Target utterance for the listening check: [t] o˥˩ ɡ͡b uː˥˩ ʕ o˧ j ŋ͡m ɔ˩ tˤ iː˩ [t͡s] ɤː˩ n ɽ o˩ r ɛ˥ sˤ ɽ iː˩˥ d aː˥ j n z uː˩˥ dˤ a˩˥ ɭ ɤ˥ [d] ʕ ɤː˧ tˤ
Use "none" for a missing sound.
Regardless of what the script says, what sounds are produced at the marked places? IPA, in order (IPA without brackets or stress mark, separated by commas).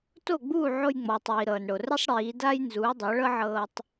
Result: t, ɾ, none